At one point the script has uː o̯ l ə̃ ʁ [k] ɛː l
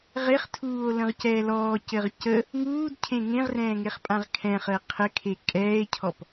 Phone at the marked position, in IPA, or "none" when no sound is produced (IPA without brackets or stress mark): c